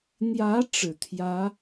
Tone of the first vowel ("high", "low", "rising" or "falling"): rising